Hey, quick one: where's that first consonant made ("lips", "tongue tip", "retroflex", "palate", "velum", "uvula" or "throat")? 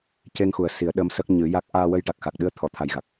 palate